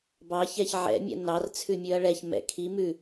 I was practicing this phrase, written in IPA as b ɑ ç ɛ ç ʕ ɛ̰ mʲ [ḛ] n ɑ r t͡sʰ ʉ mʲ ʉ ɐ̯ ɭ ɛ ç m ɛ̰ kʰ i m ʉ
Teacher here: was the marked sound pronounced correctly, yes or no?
no